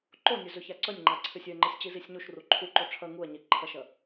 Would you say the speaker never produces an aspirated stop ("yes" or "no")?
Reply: no